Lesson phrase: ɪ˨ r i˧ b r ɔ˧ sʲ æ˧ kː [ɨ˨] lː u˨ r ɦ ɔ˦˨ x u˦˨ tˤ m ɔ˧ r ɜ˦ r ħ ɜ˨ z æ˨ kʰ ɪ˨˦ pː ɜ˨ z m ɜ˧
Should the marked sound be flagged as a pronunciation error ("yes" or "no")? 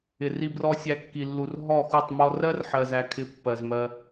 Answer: yes